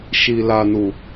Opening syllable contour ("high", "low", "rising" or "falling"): low